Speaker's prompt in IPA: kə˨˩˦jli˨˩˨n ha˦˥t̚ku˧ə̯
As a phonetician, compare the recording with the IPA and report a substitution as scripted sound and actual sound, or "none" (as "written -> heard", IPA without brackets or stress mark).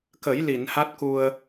none